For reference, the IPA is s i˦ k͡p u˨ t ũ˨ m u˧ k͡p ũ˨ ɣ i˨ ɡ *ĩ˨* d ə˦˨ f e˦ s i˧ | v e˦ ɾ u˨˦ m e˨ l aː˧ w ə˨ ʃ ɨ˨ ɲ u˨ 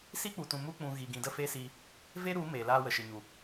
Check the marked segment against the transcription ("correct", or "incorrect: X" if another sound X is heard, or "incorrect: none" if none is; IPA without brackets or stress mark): correct